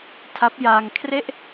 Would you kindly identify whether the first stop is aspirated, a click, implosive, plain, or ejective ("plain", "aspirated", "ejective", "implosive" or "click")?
aspirated